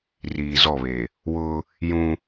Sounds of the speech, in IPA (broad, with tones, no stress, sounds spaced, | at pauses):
r iː˨ z ɔ˦˨ β e˨ | w ʊ˦ | j ũ˦